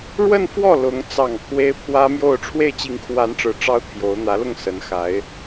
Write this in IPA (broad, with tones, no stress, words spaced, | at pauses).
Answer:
ɻwə˥˧nfwɔ˥˩ lʊ˧˥ŋ t͡sɑ˨˩ŋ pʰwe˥ɪ̯ pʰwä˥mjo˥˧ʊ̯ ʈ͡ʂʰwe˥˩ɪ̯t͡ɕi˧˥ŋkʰwa˧˥nʈ͡ʂɻ̩˨˩ ʈ͡ʂɑ˥ʊ̯t̪ʰjo˧˥ʊ̯ n̪ä˧˥lʊ˥˩ŋsə˧˥n xa˧˥ɪ̯